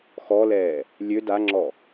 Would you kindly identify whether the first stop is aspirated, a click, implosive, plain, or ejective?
plain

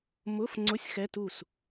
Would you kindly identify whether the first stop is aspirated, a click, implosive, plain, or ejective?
click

